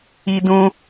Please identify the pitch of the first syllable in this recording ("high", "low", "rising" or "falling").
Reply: high